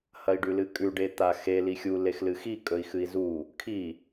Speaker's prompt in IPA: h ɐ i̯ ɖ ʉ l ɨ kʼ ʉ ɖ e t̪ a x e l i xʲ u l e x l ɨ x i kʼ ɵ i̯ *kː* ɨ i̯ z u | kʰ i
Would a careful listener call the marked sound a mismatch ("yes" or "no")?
yes